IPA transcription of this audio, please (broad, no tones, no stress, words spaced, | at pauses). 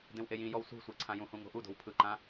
dẽwʔejĩjɔw sṳsʷe ǀʰãjũhũ ŋo̤ʔudo̤w pʰɯǃã